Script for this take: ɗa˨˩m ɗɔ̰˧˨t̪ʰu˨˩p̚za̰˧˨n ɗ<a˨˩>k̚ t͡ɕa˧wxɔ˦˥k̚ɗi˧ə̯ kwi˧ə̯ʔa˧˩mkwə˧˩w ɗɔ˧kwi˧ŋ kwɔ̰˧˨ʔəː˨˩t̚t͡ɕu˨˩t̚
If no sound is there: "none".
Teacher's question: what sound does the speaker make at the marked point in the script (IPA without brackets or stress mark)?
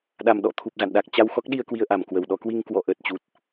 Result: a˨˩